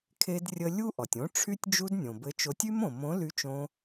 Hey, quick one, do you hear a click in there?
no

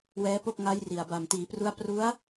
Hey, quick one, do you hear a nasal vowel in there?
no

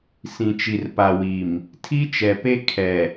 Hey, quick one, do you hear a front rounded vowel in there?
no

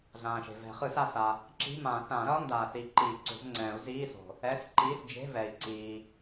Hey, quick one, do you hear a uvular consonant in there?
yes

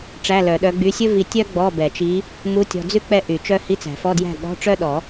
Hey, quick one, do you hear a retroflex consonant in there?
yes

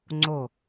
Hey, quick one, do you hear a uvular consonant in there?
no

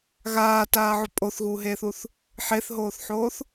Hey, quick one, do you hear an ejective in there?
yes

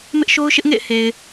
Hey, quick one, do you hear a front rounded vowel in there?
no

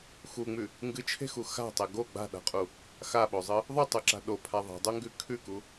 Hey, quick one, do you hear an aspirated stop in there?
yes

